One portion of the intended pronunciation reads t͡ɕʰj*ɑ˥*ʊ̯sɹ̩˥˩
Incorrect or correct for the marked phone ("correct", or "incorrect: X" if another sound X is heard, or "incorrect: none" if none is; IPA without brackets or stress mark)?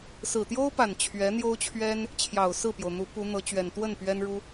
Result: incorrect: ɑ˨˩